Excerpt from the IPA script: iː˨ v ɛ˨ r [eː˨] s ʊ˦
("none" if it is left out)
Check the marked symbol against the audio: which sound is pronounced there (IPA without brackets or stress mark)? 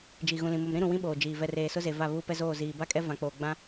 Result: eː˨